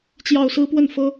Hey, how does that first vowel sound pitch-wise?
falling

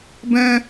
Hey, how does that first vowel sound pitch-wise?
high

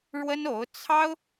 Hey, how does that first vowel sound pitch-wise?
high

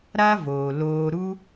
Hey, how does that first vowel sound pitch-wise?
high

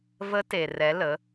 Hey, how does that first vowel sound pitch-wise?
rising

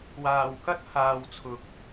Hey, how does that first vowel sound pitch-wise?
low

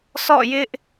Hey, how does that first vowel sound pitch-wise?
falling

